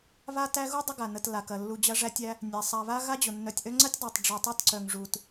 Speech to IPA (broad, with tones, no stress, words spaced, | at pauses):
βa˦tæ˦ɣu˥ dˤə˦ɡa˩nə˨t la˩kɐ˩lːu˨ d͡ʑɐ˦ʐæ˦tʲæ˦ | nʲæ˩sˤa˨βa˦ ɣa˦d͡ʑʊ˩nːœ˨tʲʔœ˦ ŋ͡ǀɐ˥tʲdˤæ˨tˤ ɖ͡ʐu˨tˤa˦tǀœ˨ŋ ʐu˨t